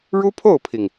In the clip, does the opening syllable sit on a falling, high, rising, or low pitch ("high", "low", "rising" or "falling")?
high